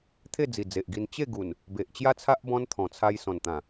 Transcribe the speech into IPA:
t̪ʰ e˥˧ d͡z i˨˩ d͡z e˨ ʔ ɡ i˧ n t͡ɕ e˥˧ ɡ u˨˩ n | b e˨ ʔ t͡ɕ j a˦ t͡sʰ a˦ ʔ b ɔ̃˧ n t̪ʰ ɔ̃˨˩ t͡sʰ a˧ j s ɔ̃˨˩ n t̪ ã˨˩

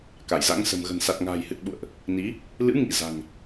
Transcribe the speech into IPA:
k a˧˩ j z a̰˧˥ ŋ s ə̤˨˩ m ɣ ə̤˨˩ n s a˨˩ t̚ ŋ a̤ː˨˩ j h ɨ˨˩ t̚ ɓ ṵ˧˨ ə̯ ʔ | n i˨˦ | l ɨ̰˧˥ ŋ ḭ˧˨ z a̤˨˩ ŋ

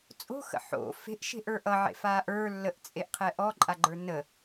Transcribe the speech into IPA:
t͡sʼ o̤ x ə̰ ħ o̰ f e̤ ʔ ʃ e̤ ʔ ə˞ ʔ ʌ ʕ ḛ f aː ʔ ə˞ lː ə ʔ t͡sʼ e ʔ qʰ ɛ ʔ ɔ ǃʼ a ɡ͡ǃ ə˞ n ə

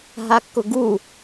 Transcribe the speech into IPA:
ɦ a kː ʊ ɡ u

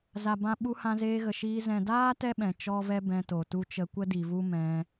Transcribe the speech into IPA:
z a˨ b ã˧ ɓ u˧ h ã˧ z eː˧ ɣ ə˨ ʃ iː˧ z ɛ̃˨ d aː˦ t ɛ˦ ɓ ɛ̃˨ t͡ʃ ɔ˦ v ɛ˦ b ɛ̃˧ t o˨ t u˦ t͡ʃ ə˧ kʷ ə˦ d i˨ v u˦ m ɛ̃˧

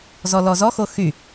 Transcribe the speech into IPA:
z ɔ l ɔ z ɔ x o x y

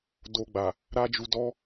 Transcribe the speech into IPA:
d o˧ ɡ͡b a˨ | ɾ a˦ d͡ʒ u˧ d ɔ˦

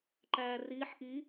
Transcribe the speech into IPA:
ǃ æː r iː ħ ʔ i

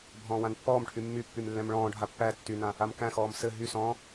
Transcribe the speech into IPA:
bʱ ɔ̃ː w ã n pː ɔː m ʈʰ y mː y pː y m lː ɛ̃ m ɭ ɔ̃ː ɖʱ a pː æ tː y n ã | a m k æ̃ x ɔː m s ɘ ɦ y s ɔ̃ː

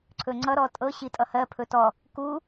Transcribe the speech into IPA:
ǀʰ ɵ ŋ͡ǀ ʌ ɾ ɔ tʼ ɤ ɕ i tʼ ʌ h ɜ pʰ ɵ t ɔ | k u

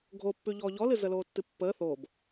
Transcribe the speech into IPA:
ɡʱ o pː ʉ ʎ ɔː ʎ ɔ l ɨ z ə l oː tː ɨ pː əː θ o b

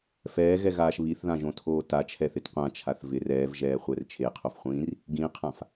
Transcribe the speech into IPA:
f ɛː ɣ ɛ ɣ aː ʃ β i θ ð ã ʒ õ tʰ oː t a t͡ʃʰ ɛ θ ɪ t qʷ ã t͡ʃʰ a θ v ɪ r ɛː v ʒ ɛː χʷ ɛ r t͡ʃʰ e qʰ o f χʷ ĩː r | ɡ ĩ qʰ ã f

